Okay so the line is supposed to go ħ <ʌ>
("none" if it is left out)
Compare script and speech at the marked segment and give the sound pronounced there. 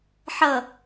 ʌ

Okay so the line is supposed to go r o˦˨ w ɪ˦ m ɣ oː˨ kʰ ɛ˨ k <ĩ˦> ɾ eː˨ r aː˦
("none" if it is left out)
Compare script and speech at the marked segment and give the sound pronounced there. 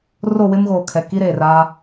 i˦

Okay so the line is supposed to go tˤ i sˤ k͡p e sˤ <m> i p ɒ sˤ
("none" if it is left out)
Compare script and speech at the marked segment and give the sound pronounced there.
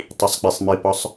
m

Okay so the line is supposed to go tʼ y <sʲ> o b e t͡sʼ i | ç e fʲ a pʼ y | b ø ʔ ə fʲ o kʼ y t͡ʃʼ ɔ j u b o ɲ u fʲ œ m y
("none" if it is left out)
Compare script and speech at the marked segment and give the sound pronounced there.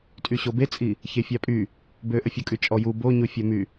ɕ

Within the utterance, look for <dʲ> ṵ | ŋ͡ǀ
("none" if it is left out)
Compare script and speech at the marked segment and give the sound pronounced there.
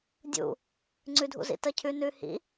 dʲ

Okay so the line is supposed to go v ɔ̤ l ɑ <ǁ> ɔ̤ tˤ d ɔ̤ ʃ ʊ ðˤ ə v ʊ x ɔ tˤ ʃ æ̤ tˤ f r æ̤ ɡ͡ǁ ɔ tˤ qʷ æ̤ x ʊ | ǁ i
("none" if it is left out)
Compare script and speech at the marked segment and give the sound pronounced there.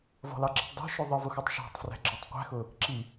ǁ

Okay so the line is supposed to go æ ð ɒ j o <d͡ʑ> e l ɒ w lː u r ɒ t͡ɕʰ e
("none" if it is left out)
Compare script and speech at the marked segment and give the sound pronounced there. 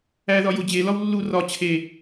d͡ʑ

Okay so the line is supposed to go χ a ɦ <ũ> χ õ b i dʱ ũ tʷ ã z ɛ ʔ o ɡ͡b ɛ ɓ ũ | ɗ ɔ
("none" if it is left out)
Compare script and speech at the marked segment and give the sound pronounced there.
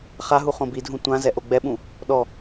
u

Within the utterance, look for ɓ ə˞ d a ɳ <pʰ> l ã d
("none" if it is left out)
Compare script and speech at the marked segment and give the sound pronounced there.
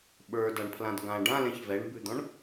pʰ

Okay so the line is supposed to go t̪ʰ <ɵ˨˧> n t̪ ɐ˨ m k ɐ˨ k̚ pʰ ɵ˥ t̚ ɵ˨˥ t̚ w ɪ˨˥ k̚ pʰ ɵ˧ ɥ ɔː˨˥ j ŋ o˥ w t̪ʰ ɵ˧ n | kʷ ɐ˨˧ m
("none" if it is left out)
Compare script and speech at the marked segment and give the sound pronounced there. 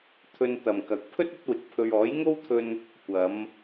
ɵ˧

